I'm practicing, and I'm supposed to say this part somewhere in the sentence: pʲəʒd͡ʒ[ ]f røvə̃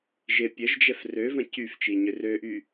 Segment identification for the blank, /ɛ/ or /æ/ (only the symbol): ɛ